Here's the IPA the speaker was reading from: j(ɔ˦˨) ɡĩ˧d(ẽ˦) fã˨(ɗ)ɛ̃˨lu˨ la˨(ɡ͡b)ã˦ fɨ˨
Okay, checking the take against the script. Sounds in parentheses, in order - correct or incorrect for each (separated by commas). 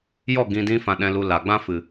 correct, incorrect, correct, correct